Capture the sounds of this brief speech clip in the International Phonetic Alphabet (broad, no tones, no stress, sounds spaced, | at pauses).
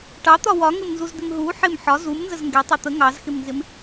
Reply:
ʈ ɑ t̪ ɒ w ɒ ŋ ɪ m n z u z d̪ ɪ m ɦ u ħ ɪ m ħ ɒ z u m n z ə z ŋ ɡ ɛ tˤ ɑ t̪ ə ŋ ɑ z x ɪ m n z ɪ m